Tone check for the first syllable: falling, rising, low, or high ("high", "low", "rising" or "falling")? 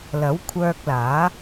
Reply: rising